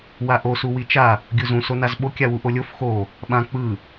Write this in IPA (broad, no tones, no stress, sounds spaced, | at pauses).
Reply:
w a ʔ o s u w i t͡ʃ a | ɡʲ u z ũ s o n a z ɓ o kʲ a w u ʔ o lʲ o f x o | ɓ ã k͡p ɯ